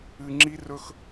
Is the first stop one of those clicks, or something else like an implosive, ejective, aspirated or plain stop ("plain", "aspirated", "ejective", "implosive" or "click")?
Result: click